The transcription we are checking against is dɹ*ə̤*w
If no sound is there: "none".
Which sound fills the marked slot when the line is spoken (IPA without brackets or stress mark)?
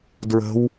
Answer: ə̤